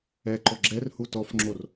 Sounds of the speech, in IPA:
ɛ ǃ ɔ ɡ͡ǁ ɛ r h u t ɔ f ŋ͡ǁ o r

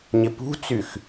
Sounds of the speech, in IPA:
ɲ ɪ p ṳ t͡s y x

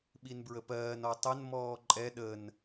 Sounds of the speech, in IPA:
ɓ i n b ɹ ə p ɜː n ɔ tˤ ə n m ɔː ǃʼ ɛ ɗ ə n

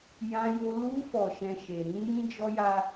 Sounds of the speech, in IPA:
j ã˧ j o˧ l u˧ f ɔ˨ ʃ ɛ̃˨ ʃ e˨ ɾ ĩ˧ j ĩ˦ d͡ʒ ɔ˦ j a˦

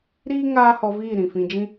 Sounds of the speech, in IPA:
ɾ iː˦ ŋ aː˦ h ɔ˧ v iː˦˨ ɾ ĩ˨ f ĩ˧ d͡ʒ ĩ˦

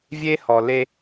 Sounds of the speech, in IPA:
vʲ e˦ h ɔ˨ l e˦

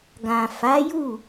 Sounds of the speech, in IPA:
ɡ ã˨ f a˨˦ j u˦˨

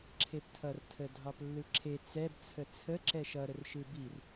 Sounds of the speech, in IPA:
ǁʰ e p tʰ ʌ r tʰ ə dʱ ɑ p lː ɯ ǁʰ e t͡s ɛ b t͡sʰ ə t͡sʰ ə ǁ ɛ ʃ ʌ ɾ ə r ʃ ɯ b i r

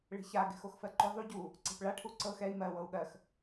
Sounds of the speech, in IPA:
ɭ e̤ ç a ɡ ɛ̤ x o x f ɜ ǃ ʏ ðˤ u ɟ u | ǀ e̤ p ɭ a ʈʰ u ǀ ɤ x ɛ i̯ m ɜ w ɤ u̯ ɠ ɜ x

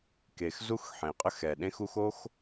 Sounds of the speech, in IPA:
k e˩ x z u˥ x ħ ẽ˩ qʼ ə˥ x ɛ˩ ɗ ẽ˥ x u˥ x o˥ x

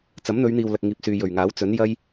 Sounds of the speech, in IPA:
t͡s ɐ˨˥ m n̪ ɵ˨˧ ɥ n̪ iː˨ w l ɐ˨ k̚ ŋ iː˨ p̚ s yː˨ j ɵ˨˩ ɥ ŋ aː˨˥ w t͡s ɵ˨˥ n j ɐ˥ j

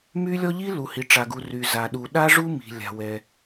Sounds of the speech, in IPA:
m y˥ lʲ ɔ˥ ʎ i˥ l u˩ h i˩ ʈ͡ʂ a˩ ɡ u˩ r y˩ z a˩ ɗ u˩ ɗ a˥ ʐ u˥ m i̤˩ lʲ a̤˩ w ɛ˩

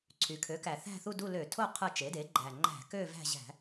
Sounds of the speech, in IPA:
ǀʰ y˩˧ kʰ ø˩˥ k æ˨˩ θ æ̤˦˨ θ u˦˨ d u˦˨ l ø˧˩˧ tʰ o˦˨ qʰ ɯ˦˨ t͡ʃ e˩˥ d e˩˥ ɡ͡ǃ æ˨˩ ŋ͡ǃ æ̤˧˩˧ k ø˦˨ v æ̤˦˨ ʑ æ̤˧˩˧

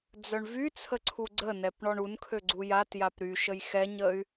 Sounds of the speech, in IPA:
d͡z œ ɳ v y t͡sʰ ə ǀʰ u ɡ͡ǀ ə n ɛ p ɳ ɔ ɳ u n kʰ ø ɡ͡ǀ u j a t j a p ɾ y ʃ ə j x ɛ ɲ ə y̯

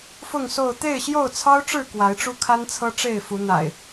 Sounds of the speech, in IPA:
f ʊ˥˨ ŋ s o˥˨ ʊ̯ t̪ e˥˨ ɪ̯ ɕ j o˥˨ ʊ̯ t͡sʰ ɑ˦ ʊ̯ ʈ͡ʂ ɻ̩˥˨ k w a˨˦ ɪ̯ ʈ͡ʂ u˦ kʰ a˦ n t͡sʰ ɤ˦ ʈ͡ʂ e˥˨ ɪ̯ f u˨˦ n̪ a̰˨˩ ɪ̯

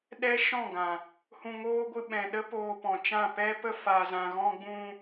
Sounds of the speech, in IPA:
ɗ ɛ˦ ʃ ɔ̃˦˨ ɡ ã˨ | h ũ˧ ŋ oː˦ ɡʷ ɨ˧ ɓ ɛ̃˨ ɗ ə˦ p oː˧ p ɔ̃˨ t͡ʃ ã˦˨ p ɛ˦ p ə˦ f a˨ z ã˨ ɣ ɔ̃˧ ɡ͡b ũ˧

